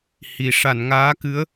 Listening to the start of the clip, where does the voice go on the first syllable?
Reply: low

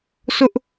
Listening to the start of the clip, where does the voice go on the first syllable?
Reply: high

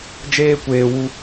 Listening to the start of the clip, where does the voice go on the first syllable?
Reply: high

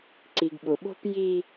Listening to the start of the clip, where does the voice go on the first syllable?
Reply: low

